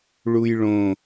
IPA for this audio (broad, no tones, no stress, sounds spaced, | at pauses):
ɭ u j ɭ õ